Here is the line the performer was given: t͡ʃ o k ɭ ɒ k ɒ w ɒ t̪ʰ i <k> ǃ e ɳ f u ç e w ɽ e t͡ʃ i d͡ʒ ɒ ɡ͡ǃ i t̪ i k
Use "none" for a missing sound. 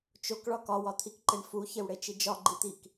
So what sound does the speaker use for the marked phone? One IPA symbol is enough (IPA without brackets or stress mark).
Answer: k